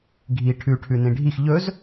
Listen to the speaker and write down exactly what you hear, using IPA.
ɡʱ i ʈʰ ʉ ʈʰ ʉ n ĩ ɖʱ i x ʎ ɵ z

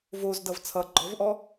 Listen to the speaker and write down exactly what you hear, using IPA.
v o z d ʌ v t͡sʰ ʌ ɡ͡ǃ ɔ v ʔ ɔ

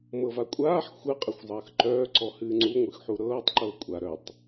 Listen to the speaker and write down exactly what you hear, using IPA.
m ɤ v a kʷʼ aː ħ xʷ ɨ qʼ ə xʷ zˤ əː x ǃ œː ǀ ɔ h ɨː ŋ͡ǀ u ŋʷ ɨ x ħ u ɾ ɤː tˤ ǃ ɤ kʷʼ a ɾ œ tˤ

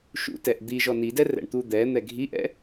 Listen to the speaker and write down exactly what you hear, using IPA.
ʃ ṵ t ɛ ʔ d̪ i ʒ ɔ n i d ɛ r ɛ̰ ɳ t̪ u d̪ ɛ n̪ ɛ ɡʱ i ʔ ɛ̰

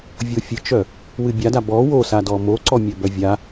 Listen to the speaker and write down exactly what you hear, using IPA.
vʲ o fʲ ɨ t͡ʃ œ | w ɨ bʲ a d a b ɔ w o s a d ɔ m o ǀ ɔ mʲ œ b œ vʲ a

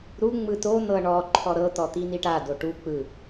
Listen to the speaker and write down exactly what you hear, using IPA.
ɾ u ŋ͡m ɯ t o n̪ ɤ ɳ ɔ ǃʰ ɔ ɾ ɤ t̪ ɔ t̪ i n̪ i ʈ a d o ʈ u k͡p ɯ

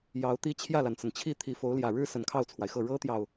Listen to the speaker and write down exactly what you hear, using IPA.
j ɑ˧˥ ʊ̯ t̪ i˥ t͡ɕʰ j ä˥˩ l a˩ n t͡s ə˩ n t͡ɕʰ i˥˩ t̪ʰ i˧˥ f o˧˥ ʊ̯ l j ä˨˩ ɻ ɻ̩˥ s ə˨˩ n kʰ ɑ˥˩ ʊ̯ t͡sʰ w a˩ ɪ̯ x ɤ˥˩ ɻ ɤ˥ t̪ j ɑ˨ ʊ̯

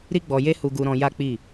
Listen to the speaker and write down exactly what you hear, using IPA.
ɾ i˧ ɡ͡b ɔ˨ j e˧ h u˧ ɡ u˧ ɾ ɔ̃˧ j a˦ k͡p i˦˨

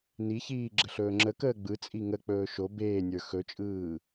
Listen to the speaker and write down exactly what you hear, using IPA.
n i ç iː ɡ͡ǁ ə ɬ ɵː ŋ͡ǁ ə k əː ɡ͡b ɯ t͡sʼ i ŋ ə k͡p ɵː ʃ o b eː nʲ ə˞ x ɵ t͡ʃʼ ɯː

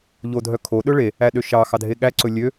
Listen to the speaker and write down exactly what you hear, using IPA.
ʎ o dʱ œ kʰ o ɗ ɵ ɭ e | æ ɗ ø ʃ ɑ x ɑ dʱ e ɠ æ ǀ ɵ lʲ ø

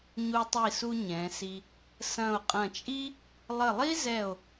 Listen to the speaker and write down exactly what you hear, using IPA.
ɲ u˧ tˤ i˧˩ s u˧ ɲ ɛ̃˩˧ s i˧ | s ɐ̃˧˩ o̯ qʼ ɐ̃˧˩ t͡ʃʼ i˥ | lˠ ə˧˩ lˠ i˥ z ɛ˧˩ o̯

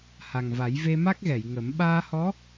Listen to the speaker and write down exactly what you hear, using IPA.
h a˨˩ ŋ v a˨˩˦ j v e˧ m a˦˥ k̚ ɣ ɛ˨˩˨ j ŋ ə˨˩˦ m ɓ aː˧ h ɔ˧˥

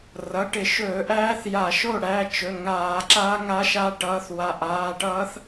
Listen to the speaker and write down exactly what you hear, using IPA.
r ʌ˩˧˩ ʈ ɪ˧˩˧ ʃ ɵː˧˩˧ ʔ æː˦˥ θ j a˧˩˧ ʃ o˥˨ ɽ æ˩˧˩ t͡ʃ ɵ˩˧˩ ŋ aː˧˩˧ ǁ aː˦˥ ŋ a˦˥ ʃ a˦˥ ʈ ʌː˨˦ θ w a˨˦ ʔ aː˩˧˩ ʈ ʌː˦˥ θ

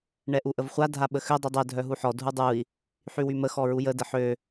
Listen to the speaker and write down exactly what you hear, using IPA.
ɳ ɛ ʔ u ʔ ə v χʷ a dʱ a ɓ ə x ø dˤ y dˤ œ dʱ œ ɦ u ħ ɔ dʱ u dˤ u i̯ | ħ y w y m ə x ɔ ɹ u j ə d ə ħ ø

